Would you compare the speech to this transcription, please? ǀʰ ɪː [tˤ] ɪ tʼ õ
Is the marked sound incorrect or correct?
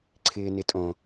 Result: incorrect